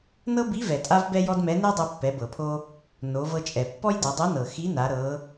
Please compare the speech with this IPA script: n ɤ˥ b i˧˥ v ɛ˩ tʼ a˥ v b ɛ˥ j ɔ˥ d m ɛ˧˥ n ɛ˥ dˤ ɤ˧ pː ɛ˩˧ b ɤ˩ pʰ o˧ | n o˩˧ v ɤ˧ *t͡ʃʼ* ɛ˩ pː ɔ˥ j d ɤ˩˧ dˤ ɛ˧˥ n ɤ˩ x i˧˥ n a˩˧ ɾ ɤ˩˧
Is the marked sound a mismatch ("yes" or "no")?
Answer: no